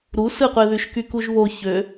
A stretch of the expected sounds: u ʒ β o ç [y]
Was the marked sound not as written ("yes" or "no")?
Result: yes